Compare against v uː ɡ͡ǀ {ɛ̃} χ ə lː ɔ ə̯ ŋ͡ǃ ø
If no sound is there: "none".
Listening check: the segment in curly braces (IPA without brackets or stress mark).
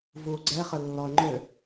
ɛ